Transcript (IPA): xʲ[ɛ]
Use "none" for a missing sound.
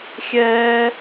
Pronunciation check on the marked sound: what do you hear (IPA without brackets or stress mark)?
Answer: ɛː